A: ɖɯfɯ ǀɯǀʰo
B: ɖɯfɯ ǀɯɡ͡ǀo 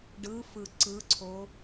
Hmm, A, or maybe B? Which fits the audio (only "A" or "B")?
A